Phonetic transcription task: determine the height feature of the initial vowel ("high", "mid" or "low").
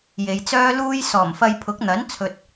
mid